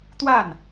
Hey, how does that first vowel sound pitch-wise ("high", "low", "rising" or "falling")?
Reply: falling